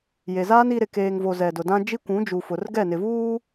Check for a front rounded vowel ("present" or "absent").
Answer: absent